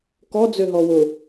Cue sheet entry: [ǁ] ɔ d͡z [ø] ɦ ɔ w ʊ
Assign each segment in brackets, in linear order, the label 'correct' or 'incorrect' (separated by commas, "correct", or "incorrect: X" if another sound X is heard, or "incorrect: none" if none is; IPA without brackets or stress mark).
incorrect: k, correct